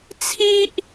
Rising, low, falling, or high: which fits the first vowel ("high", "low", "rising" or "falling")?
high